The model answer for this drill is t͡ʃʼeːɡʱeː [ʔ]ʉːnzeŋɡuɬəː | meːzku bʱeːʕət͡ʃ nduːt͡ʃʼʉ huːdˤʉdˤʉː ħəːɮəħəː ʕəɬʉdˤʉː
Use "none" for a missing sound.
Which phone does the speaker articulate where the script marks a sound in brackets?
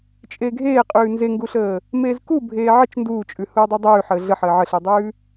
qʼ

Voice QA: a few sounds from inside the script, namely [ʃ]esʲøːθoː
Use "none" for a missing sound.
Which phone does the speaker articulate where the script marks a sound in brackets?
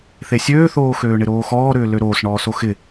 θ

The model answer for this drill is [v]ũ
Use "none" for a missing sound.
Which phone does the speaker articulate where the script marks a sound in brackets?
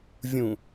vʲ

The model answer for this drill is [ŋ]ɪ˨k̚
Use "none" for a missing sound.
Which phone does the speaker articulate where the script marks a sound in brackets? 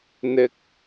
n̪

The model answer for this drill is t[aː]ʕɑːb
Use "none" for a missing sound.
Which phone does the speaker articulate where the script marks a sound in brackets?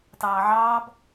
ɑː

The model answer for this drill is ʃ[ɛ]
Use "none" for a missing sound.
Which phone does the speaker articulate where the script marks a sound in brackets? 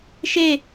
e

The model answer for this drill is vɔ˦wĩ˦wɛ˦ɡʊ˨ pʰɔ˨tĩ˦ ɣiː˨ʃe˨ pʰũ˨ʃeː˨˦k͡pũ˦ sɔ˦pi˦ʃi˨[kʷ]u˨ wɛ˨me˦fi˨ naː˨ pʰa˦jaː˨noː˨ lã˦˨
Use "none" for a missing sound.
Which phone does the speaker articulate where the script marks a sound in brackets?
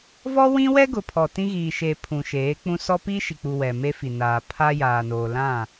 k͡p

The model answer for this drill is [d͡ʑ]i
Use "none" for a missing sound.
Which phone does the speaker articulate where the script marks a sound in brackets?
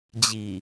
d͡ʑ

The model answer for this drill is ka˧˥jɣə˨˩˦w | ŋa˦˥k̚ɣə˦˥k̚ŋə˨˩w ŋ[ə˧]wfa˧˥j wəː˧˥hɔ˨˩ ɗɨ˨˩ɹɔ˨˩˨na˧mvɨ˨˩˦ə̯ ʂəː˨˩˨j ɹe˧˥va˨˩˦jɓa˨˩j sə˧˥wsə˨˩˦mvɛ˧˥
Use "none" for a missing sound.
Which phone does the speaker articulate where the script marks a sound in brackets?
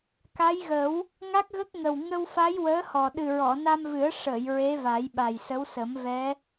ə˧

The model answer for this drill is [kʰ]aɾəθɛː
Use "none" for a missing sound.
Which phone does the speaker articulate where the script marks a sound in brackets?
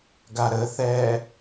ɡ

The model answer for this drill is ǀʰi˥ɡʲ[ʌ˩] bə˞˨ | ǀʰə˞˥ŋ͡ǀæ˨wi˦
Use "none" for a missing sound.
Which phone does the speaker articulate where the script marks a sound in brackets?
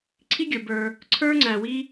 ə˞˩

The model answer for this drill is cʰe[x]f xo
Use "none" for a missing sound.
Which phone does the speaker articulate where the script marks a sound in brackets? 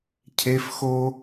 none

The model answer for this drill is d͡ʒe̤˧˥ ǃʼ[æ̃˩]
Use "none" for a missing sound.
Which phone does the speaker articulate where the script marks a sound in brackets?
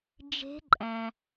æ̃˩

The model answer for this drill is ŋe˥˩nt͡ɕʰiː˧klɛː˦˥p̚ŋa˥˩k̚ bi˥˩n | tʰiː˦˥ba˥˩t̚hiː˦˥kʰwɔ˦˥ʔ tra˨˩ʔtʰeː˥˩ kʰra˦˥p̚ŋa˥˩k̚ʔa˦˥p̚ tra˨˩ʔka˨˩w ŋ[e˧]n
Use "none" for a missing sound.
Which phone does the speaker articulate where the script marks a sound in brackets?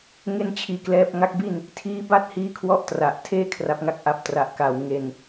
e˧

